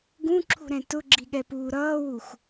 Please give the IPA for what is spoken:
ɡ ũ ǁʰ ṳ ɾ ɛ̃ t ʊ ɡ͡ǁ i ɠ ɛ p uː ɾ ʌː w u x

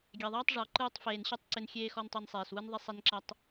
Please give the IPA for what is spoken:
ɡʲ ɛ˨ ðˤ ɛː˦ tˤ ʐ ɔ˨ ǃ ɯː˧ tˤ f eː˨ n ɕ ɯ˦˨ tˤ ǀ ɪ˧ n xʲ eː˦ x ɔ˦ n tˤ i˧ n sˤ eː˨ s w ɯ˦ n ðˤ e˦ sˤ e˦ n ǁ ɐ˦ tˤ

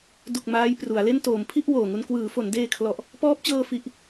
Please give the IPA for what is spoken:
d u˨˩ k̚ m aː˦˥ j p r u˩˦ a̯ l e˥˩ n t oː˩˦ m pʰ i˥˩ ʔ w oː˨˩ ŋ u˧ n k w ɯː˩˦ f o˩˦ n d eː˧ kʰ l ɔ˨˩ ʔ | p ɔː˦˥ p̚ t͡ɕ ɤː˧ f i˨˩ ʔ

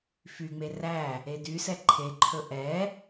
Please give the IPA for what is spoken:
f y ŋ͡m e r æ | e d y s ɛ ǃʰ e ǃʰ ɵ ʔ ɛ

